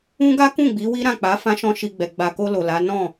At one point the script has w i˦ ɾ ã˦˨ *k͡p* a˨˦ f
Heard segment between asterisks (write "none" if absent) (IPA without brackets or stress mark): k͡p